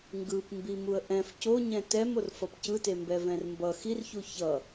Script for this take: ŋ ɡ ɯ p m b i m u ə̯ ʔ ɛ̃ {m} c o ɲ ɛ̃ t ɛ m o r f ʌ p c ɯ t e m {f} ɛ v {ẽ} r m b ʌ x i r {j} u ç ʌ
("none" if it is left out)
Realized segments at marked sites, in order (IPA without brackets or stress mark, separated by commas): f, b, ɛ̃, ç